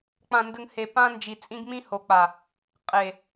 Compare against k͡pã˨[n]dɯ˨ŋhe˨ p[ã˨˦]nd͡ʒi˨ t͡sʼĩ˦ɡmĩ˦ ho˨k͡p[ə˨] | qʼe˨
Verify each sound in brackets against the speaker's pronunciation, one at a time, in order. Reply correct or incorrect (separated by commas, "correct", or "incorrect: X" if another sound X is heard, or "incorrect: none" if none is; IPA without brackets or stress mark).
correct, incorrect: ã˦, incorrect: a˨